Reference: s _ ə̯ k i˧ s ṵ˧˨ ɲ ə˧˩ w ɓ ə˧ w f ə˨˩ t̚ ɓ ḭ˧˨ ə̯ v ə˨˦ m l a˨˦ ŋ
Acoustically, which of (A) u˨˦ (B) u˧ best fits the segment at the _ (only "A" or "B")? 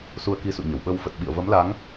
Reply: B